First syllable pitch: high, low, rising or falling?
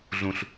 low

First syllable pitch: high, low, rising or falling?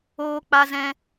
high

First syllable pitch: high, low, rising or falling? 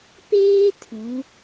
high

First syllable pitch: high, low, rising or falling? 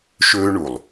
high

